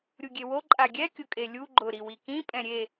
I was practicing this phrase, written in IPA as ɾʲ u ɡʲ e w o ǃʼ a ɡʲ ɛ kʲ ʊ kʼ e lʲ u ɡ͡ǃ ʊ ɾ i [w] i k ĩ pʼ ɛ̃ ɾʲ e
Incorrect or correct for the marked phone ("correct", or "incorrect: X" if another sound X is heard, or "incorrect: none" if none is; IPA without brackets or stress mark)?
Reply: correct